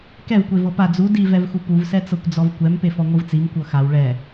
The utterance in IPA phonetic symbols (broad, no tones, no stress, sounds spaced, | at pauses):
k ɛ v kʷ e v ɤ p a d͡z u d i v ɛ v x u p u v s ɛ t͡s ɤ kʷ d͡z ɔ v kʷ ɛ m p e f ɔ ŋʷ ɯ v t͡s i m kʷ ɤ x a w ɭ ɛ